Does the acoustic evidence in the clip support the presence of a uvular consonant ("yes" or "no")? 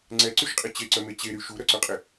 yes